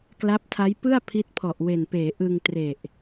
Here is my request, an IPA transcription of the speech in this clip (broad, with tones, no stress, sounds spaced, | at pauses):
k l a˦˥ p̚ tʰ a˦˥ j p ɯ˥˩ a̯ pʰ i˦˥ t̚ pʰ ɔ˨˩ ʔ w e˨˩ n p eː˩˦ ʔ ɯ˧ ŋ t r e˨˩ ʔ